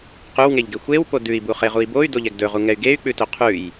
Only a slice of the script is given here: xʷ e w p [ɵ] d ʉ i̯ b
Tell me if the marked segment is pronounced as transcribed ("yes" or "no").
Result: no